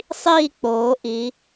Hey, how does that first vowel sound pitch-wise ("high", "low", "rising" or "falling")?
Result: falling